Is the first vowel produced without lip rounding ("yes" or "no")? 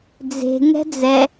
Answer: yes